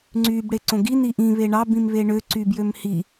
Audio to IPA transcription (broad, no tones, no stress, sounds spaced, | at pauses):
ŋ͡ǀ yː b ɽ e ǀ õ ɡ i n i ʔ ĩ β e ɳ ɑ b ĩ m β e ɳ ø ǀ y b j ø m h i